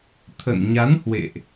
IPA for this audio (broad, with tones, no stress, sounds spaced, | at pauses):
t̪ʰ ə̰˧˨ n ɲ a˨˦ n h w ḛ˧˨ ʔ